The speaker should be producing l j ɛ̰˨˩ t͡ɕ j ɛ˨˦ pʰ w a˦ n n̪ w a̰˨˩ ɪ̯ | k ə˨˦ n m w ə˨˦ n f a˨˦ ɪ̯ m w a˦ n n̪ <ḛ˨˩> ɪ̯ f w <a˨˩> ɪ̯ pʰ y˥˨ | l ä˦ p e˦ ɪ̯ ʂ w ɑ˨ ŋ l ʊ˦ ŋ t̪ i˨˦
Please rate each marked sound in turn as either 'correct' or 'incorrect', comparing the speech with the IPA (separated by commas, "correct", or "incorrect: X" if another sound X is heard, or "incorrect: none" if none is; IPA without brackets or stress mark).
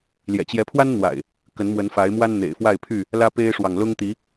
correct, incorrect: a˥˨